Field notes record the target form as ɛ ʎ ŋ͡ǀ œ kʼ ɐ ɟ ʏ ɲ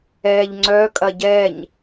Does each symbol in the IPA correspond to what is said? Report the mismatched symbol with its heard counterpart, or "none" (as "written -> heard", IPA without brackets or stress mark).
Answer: ʏ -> ɛ